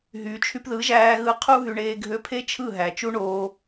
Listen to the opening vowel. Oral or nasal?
oral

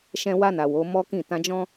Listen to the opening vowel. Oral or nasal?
nasal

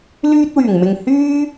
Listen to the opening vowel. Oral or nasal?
oral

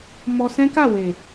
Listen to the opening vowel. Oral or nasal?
oral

